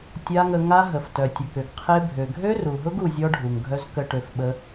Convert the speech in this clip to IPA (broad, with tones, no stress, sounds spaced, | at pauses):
tʲ a˦ ŋ ə˧ ŋ a˦ ɦ ə˨ f t œ˨ tʲ ə˨ k ʏ˨ ɡ qʰ e˦ bʱ ø˨ ɡʱ ø˦ r u˨ ɦ ʊ˦ ɡ u˧ zʲ ɔ˦ ɖʱ u˨ ŋ ɡʱ œ˦ z k ə˧ ʈ ø˧ f ɓ ə˦